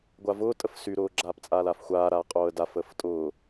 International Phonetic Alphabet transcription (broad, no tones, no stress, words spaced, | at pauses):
ɡʷavʊː tʼəfsy ɾʊːɡ͡ǁaːp t͡sʼaːlafxʷaː ɾaːqʼoːə̯daf əːftʼʊː